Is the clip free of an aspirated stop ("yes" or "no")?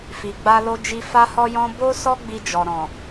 yes